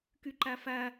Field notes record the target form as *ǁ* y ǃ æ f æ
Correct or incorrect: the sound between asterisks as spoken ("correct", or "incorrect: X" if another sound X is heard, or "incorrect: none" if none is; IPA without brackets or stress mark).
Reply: incorrect: k